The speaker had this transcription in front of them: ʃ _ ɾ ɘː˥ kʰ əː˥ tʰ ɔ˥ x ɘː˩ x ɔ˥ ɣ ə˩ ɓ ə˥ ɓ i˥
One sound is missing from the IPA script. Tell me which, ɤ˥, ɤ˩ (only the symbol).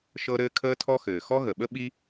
ɤ˥